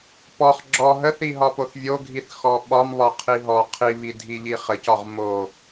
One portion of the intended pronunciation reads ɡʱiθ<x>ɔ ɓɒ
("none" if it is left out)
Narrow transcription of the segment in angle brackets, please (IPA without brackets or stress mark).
x